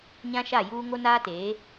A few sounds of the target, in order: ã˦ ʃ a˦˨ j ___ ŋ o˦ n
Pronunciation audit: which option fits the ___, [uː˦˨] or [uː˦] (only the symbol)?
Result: uː˦